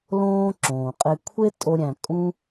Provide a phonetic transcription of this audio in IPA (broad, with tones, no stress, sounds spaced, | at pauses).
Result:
l õː˦ ǁ õː˨ qʼ e˦ kʷʰ e˦ tʼ o˦ ɾʲ æ̃˧ kʼ ũ˦